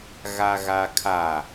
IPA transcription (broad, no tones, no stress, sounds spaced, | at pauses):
ɣ a ɣ a kʰ a